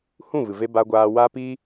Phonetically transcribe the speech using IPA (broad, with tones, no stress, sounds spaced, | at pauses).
h ũ˦˨ v ɨ˨ v e˧ b a˧ ɡʷ aː˧ w a˦ p i˦